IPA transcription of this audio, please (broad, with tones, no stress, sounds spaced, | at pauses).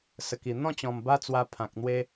s ə˨˩ k i˨˩ n̪ ɔ̃˥˧ t͡ɕ ɔ̃˨˩ m b a˦ t͡s w a˧ pʰ ã˨ k̚ n̪ w e˦